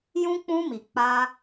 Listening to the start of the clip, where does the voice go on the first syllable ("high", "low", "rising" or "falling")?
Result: high